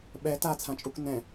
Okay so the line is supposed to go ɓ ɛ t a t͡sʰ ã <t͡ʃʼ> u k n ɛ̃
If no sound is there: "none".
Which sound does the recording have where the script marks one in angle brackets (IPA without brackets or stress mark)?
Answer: t͡ʃʼ